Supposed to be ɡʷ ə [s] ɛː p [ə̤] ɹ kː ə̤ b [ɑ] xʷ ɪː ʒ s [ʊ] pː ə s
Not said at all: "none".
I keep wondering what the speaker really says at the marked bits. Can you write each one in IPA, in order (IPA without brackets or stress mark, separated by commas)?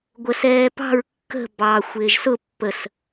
s, ɑ̤, ɑ, ʊ